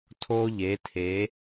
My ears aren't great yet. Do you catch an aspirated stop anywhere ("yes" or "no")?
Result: yes